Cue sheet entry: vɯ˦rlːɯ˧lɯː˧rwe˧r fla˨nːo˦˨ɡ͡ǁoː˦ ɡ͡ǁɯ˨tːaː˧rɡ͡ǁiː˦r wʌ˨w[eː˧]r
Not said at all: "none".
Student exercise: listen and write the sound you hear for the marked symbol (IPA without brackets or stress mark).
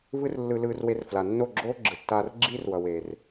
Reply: eː˨